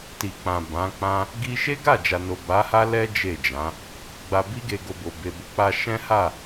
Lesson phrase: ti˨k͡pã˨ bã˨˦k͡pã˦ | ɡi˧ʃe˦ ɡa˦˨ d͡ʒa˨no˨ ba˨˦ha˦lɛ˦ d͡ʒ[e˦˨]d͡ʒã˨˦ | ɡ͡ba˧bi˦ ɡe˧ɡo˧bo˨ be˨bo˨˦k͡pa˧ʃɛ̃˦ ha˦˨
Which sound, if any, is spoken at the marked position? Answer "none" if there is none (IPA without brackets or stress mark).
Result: e˦˨